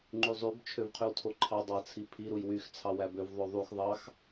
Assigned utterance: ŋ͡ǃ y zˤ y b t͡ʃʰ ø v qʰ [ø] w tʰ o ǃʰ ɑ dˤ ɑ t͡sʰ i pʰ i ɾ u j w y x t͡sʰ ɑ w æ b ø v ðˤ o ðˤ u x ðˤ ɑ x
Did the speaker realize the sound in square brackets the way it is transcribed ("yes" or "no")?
no